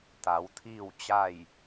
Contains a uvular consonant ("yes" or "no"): no